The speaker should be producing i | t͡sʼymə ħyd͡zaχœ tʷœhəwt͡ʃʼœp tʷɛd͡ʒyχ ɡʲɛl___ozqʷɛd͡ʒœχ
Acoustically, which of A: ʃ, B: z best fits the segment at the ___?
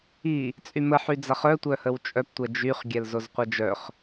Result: B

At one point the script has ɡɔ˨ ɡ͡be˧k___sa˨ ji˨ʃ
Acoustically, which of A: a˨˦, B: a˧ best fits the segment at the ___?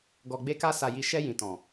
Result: B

